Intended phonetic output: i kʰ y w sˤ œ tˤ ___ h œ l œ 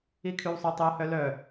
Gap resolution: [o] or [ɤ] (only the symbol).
o